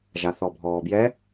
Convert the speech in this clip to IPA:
ʒ a θ ɔ bʱ ɔː b j ɛ

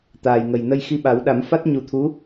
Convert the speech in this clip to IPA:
t̪ aː˨˩ j ŋ ə˨˩ j n ə˧ j x i˧ ɓ a˨˩˦ w ɗ a˨˩˦ m f a˦˥ t̚ ɲ u˨˩˦ t̪ʰ u˧˥

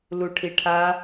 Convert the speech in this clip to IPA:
l u ʈʰ i ʈʰ a

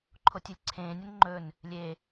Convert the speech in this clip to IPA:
ǃʰ o tʲ ʉ lʲ ǀʰ ẽː nʲ ɵ n ŋ͡ǃ ɵ n | lʲ e

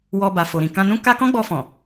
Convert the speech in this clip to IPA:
w ɔ˧ b a˨ f o˨ ɾ ĩ˨ k ã˧ n ũ˦ k a˦ k ɔ̃˦ ɡ͡b ɔ˧ f ɔ̃˨

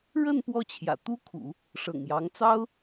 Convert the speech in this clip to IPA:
ɻ ə˥˧ n p w ɔ˥˩ t͡ɕʰ j ä̰˨˩ t̪ u˥ kʰ ṵ˨˩˦ | ʂ ɤ̰˨˩ ŋ j ɑ˧˥ ŋ t͡s ɑ˥ ʊ̯

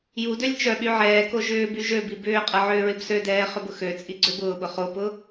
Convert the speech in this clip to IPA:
j u d ø lʲ t͡ʃ œ ɓ y ʕ ɛː k o ʒ ʏː b y ʒ ø b i b ʏː qʼ ɐ ʕ ʏː ɹ ɪ b s ø d ɛː χ ʏ b ʊ x ø t͡sʼ i ɡ͡ǀ ø b ʊː ɓ ʊ χ o p ʊ

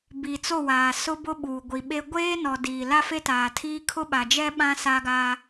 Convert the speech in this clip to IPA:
b i˨ t͡s o˦˨ w aː˨ s ʊ˦ b ʊ˦ ɓ uː˨ ɡʷ i˨ ɓ e˦ ɡʷ eː˦ n ɔ˨ d iː˨ l a˦ f e˦ t aː˨ tʰ iː˦ kʰ ʊ˦ ɓ a˨ d͡ʒ ɛ˦ ɓ ã˦ s a˦ ɡ a˦

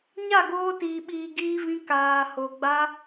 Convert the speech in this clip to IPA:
ɲ a˦˨ ɡ oː˧ t iː˨ ɓ iː˨ ɡ iː˧ v ĩ˧ k aː˨ h o˨ ɡ͡b a˧

